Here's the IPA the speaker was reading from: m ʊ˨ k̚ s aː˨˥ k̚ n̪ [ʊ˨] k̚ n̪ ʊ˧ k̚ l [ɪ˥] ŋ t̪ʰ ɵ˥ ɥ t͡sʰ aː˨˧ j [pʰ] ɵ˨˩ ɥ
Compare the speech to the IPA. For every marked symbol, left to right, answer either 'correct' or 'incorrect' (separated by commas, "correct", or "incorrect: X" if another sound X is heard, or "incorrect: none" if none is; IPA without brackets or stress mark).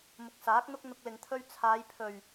incorrect: ʊ˥, incorrect: ɪ˨, correct